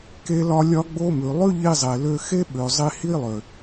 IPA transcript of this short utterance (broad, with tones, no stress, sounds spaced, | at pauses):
k e˦ l ɒ˦ lʲ ɒ˦ ɡ͡b o˦ m ʉ˨ lˠ ʉ˦ ʎ i˧ zˤ e˨ l ø˧ x e˦ ɓ ø˨ zˤ i˧ h i˦ lˠ ø˨